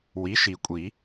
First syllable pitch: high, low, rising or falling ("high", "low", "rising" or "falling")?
rising